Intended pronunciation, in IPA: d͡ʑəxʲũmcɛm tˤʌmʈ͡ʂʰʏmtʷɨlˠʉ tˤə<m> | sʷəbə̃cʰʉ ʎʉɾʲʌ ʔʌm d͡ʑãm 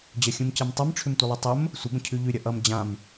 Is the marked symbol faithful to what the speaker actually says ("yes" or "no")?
yes